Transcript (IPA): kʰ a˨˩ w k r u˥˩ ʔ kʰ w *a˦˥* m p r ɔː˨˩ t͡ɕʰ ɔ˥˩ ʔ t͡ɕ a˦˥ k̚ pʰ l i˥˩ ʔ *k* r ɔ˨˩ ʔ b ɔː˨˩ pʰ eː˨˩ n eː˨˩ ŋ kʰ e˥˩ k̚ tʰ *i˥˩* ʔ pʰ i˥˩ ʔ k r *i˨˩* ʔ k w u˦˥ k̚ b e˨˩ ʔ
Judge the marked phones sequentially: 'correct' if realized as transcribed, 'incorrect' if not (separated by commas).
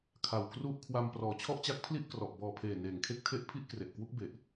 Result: incorrect, correct, incorrect, incorrect